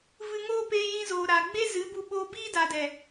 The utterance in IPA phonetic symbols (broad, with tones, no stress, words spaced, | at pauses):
vɨ˧ŋoː˦peː˧ jĩ˧zoː˨ɾaː˨ ɡ͡be˦zɨ˨˦bu˧ɓoː˧ biː˦da˨dɛ˨